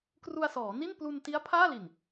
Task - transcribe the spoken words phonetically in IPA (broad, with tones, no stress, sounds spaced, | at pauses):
k r u˧ a̯ s ɔː˩˦ n i˥˩ n p l u˧ n t i˦˥ a̯ pʰ aː˥˩ l i˨˩ n